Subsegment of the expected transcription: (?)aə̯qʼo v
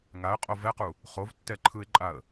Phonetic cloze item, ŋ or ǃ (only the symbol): ŋ